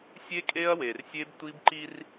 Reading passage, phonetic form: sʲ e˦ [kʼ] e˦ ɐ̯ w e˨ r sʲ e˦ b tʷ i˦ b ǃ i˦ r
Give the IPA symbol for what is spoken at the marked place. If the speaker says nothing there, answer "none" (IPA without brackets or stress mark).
kʼ